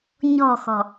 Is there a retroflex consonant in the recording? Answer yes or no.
no